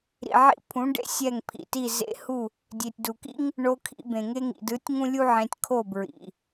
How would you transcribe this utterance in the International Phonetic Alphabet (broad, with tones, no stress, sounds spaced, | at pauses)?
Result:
ɾ ḭ˨ ʕ ḭ˧ pʰ ũ˨˦ ɖ ḛ˧ sʲ ɛ˦˨ ŋ pʰ ḭ˨ t i˦˨ z ḛ˧ h u˦˨ | dʲ e˨ tʲ d u˨ k ḭ˦ ŋ | ɳ o˧ kʰ ḭ˧ b ẽ˨ ŋ e˧ ŋ ḭ˨ d ɯ˨˦ tʲ ŋ ũ˦ lʲ u˦ ʕ ẽ˧ tʲ kʰ o˦˨ b ɹ ḭ˨